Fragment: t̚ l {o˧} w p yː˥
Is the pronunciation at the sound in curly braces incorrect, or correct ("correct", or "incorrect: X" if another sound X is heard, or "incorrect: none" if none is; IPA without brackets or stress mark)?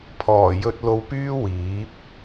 correct